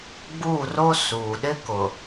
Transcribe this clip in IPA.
ɡ͡buː˦˨ro˦ suː˨ ɗɪ˦kʊ˨

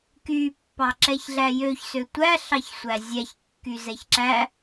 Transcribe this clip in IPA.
ky pːɑǁɛçɮæjøç søtʷæ ɬɑçsʷæzʲæç kːyzɛçǁæ

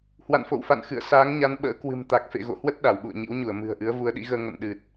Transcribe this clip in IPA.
hwa̰˧˨nfo̰˧˨wfa̰˧˨n xɨ̰˧˨ə̯saː˨˦ŋɲa˨˦n ɓə̰ː˧˥kwɨ̤˨˩mt̪a˨˩k̚ fḛ˧˨ɣo̰˧˨hwə˦˥t̚ ɗa˧˩wɓṵ˧˨ə̯ɲḭ˧˥wɲu˧˩ə̯ mɨ̤˨˩ə̯ʔɨ˨˦ə̯ vu˨˦ə̯ɗḭ˧˥ɣəː˧ ŋə̰˧˨nɗɨ˨˩t̚

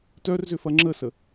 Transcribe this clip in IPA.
tœrzʏfɐ ŋ͡ǁəsə

